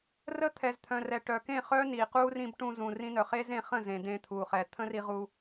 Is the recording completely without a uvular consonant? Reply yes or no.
no